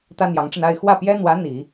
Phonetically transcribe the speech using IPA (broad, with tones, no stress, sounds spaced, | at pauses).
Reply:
t̪ ä˥ n̪ j ɑ˧˥ ŋ ʈ͡ʂ ə˧ n a˥˧ ɪ̯ x w ä˥˩ p j ɛ˥ n̪ w ä˧˥ n̪ i˨˩˦